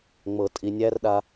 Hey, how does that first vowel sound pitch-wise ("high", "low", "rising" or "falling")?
low